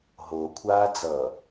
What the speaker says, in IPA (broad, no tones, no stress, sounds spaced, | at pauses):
ɦ o kʷʰ aː d͡z ʌː